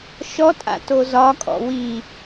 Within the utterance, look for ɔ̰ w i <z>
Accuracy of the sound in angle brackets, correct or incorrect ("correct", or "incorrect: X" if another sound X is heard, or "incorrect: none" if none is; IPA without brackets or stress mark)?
incorrect: none